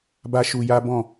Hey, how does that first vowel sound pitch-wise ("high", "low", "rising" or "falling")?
high